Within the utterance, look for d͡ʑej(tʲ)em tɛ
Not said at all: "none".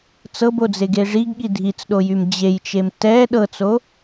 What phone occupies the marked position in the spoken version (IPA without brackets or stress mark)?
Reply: t͡ʃ